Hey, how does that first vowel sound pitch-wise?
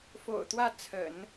low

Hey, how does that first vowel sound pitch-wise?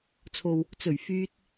low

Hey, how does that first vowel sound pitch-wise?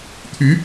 rising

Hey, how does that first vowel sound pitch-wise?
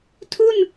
falling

